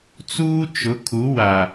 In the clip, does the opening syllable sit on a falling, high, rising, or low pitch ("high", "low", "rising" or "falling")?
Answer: high